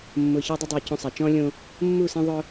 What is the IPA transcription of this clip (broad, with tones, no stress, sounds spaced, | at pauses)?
mː ʊː˨ ç a˦ dˤ ʊ˦ dˤ oː˨ c õ˦ sˤ a˨ t͡ʃ ɔ̃ː˦ lʲ õ˦ | mː u˦˨ s ɛ̃˦ ðˤ ʊ˦